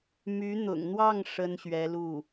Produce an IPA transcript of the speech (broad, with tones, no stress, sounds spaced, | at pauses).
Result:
m y˧˥ n̪ ʊ̰˨˩ ŋ n̪ w ɑ˥˩ ŋ ʂ ə˥ n ɕ ɥ ɛ˧˥ l u˥˩